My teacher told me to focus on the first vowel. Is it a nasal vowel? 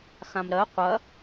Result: yes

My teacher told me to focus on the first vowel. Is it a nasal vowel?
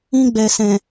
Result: yes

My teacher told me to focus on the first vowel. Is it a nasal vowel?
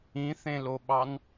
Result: yes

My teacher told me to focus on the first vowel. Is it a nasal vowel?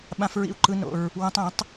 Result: yes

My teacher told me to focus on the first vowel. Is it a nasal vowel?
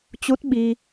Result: no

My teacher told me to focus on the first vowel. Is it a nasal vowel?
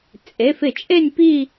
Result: no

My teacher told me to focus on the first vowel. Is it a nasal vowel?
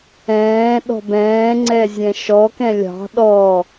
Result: yes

